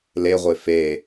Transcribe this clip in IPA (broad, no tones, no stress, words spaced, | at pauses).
leʁʷe fe